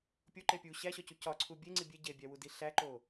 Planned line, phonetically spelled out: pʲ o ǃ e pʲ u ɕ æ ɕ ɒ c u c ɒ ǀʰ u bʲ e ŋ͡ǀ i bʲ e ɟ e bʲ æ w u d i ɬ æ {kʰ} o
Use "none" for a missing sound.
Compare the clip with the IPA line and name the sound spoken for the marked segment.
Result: ǃ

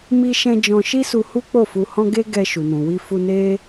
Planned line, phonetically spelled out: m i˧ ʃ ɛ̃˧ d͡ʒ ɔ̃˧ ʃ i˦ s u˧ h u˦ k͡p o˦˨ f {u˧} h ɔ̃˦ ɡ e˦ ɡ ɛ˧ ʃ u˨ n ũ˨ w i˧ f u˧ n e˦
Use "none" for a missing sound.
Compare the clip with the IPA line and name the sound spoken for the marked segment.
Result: u˧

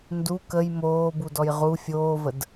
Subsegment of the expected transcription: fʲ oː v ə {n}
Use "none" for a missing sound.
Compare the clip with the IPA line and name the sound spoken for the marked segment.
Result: d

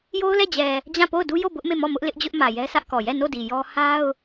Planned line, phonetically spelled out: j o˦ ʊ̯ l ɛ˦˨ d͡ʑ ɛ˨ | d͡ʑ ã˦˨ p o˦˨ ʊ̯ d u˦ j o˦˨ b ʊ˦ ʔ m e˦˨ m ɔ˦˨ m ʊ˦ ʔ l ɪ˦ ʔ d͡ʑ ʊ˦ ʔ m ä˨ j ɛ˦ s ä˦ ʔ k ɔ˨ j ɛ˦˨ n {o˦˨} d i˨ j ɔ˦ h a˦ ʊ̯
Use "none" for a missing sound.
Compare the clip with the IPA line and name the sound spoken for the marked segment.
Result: o˦˨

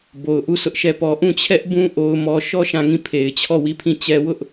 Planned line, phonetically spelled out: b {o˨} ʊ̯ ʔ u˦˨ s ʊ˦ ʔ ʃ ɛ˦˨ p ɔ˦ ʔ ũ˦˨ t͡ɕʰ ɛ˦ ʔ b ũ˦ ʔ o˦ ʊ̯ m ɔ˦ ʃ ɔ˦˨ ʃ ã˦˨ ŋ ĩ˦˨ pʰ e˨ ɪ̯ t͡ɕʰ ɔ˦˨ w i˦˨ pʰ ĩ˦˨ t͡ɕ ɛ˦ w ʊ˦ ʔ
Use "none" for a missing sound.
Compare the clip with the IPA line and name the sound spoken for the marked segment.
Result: o˨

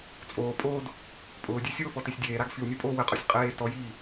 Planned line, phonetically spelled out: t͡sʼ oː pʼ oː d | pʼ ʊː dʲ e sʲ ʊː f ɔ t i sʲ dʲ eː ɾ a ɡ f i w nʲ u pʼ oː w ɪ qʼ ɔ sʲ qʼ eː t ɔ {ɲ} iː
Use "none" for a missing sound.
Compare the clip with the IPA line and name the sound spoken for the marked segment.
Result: j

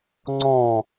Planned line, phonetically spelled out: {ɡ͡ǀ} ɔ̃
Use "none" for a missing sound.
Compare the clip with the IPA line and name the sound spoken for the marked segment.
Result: ŋ͡ǀ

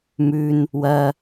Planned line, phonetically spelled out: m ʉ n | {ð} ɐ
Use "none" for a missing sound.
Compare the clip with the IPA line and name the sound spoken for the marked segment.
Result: w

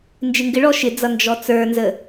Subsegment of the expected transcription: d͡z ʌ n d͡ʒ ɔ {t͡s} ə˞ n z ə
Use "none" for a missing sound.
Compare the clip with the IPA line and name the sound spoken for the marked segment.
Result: t͡s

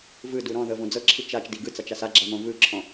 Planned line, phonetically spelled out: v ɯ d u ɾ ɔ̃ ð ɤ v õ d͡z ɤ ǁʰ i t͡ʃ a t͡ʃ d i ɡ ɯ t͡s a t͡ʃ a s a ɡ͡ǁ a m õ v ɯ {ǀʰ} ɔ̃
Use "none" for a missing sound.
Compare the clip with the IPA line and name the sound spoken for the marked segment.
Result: ǁʰ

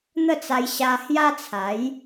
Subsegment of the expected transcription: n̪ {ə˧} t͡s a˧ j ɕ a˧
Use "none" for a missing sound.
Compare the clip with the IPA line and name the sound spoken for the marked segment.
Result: ə˥˧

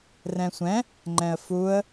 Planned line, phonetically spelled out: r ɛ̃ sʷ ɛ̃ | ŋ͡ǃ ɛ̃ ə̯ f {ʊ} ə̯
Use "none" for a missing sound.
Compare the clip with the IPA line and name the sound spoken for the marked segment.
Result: u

